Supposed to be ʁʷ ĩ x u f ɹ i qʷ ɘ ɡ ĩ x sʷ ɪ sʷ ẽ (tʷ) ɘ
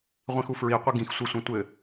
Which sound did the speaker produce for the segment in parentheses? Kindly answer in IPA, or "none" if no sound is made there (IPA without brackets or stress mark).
tʷ